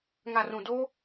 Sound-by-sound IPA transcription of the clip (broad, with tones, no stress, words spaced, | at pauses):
ŋa˨rũ˨doː˦